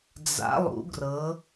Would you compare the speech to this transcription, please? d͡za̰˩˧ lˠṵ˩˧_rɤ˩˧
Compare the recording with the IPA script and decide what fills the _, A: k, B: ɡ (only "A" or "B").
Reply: B